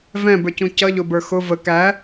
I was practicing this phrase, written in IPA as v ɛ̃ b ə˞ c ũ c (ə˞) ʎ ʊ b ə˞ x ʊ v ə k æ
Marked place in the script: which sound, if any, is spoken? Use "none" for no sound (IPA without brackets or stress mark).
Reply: ʌ